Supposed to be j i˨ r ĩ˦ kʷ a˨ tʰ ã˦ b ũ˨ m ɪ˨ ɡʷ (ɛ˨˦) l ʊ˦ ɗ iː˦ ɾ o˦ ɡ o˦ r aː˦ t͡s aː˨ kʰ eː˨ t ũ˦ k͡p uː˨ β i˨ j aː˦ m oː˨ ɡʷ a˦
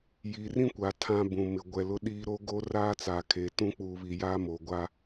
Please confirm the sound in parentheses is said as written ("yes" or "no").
no